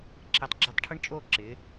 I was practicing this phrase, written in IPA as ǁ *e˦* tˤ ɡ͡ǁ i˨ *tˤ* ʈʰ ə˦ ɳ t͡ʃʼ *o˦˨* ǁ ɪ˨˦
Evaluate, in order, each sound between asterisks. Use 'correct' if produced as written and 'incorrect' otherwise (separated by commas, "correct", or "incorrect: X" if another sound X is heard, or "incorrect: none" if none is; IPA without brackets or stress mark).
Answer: incorrect: e˨, correct, correct